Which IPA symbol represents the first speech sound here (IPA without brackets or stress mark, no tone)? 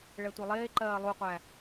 ɭ